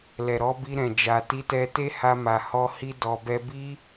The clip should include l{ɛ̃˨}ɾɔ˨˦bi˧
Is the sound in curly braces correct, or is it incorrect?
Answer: incorrect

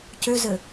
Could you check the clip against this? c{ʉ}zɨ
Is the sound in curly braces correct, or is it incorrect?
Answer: correct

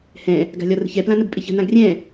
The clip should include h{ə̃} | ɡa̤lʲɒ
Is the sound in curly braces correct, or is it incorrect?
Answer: incorrect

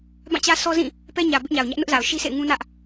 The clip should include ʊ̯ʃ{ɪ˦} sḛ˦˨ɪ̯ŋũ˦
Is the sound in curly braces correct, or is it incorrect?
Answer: incorrect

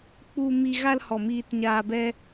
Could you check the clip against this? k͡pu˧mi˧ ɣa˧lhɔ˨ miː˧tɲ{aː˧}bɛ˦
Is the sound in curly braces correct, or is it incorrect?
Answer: correct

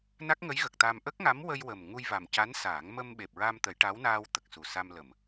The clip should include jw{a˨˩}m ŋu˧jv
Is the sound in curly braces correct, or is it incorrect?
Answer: incorrect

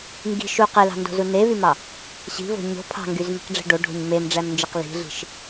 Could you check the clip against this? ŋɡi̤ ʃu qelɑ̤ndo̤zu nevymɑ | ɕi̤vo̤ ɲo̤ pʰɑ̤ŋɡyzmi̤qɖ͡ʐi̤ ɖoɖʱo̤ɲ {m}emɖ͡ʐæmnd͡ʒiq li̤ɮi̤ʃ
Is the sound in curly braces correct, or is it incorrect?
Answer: correct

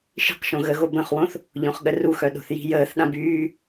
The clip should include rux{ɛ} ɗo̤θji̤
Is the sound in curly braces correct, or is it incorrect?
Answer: incorrect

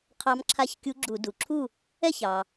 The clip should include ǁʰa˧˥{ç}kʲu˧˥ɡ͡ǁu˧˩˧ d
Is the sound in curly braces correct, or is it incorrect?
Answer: correct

